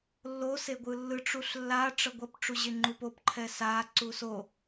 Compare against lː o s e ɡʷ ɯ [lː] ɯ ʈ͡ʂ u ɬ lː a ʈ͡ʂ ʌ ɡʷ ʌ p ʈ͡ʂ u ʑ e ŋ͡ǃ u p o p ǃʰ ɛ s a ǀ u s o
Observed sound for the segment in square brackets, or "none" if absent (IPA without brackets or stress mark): lː